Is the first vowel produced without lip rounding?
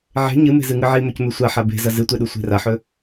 yes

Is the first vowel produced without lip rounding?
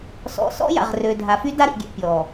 no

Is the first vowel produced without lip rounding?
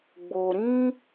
no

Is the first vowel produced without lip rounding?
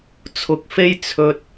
no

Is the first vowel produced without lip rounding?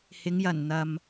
yes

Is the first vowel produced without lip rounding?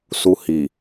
no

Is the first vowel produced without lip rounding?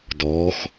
no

